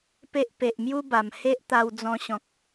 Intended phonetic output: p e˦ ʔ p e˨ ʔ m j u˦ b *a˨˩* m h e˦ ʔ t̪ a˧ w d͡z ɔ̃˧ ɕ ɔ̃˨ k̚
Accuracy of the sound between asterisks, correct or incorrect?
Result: correct